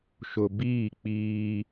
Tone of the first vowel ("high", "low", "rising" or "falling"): low